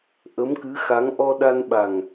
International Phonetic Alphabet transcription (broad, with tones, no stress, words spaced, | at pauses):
ʔə˧˥mkɨ˧˥xa˧˥ŋ ʔɔ˧ɗa˧nɓa˨˩ŋ